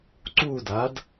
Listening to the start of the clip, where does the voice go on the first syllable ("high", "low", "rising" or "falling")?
falling